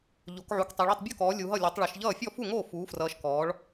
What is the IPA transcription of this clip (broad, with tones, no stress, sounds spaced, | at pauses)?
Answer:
ʎ o˨˦ k ʕ u˨˦ k tˤ e˨˦ ɭ o˥˨ tˤ bʲ o˥˨ k ɔː˨˦ lʲ u˨˦ ɦ ʌ˥˨ lʲ o˨˦ tˤ ɭ ʌ˨˦ ʃ ʎ ʌː˥˨ fʲ ɔ˥˨ f u˥˨ ŋ oː˥˨ f uː˨˦ f r ʌː˨˦ ʃ k ɔː˨˦ ɭ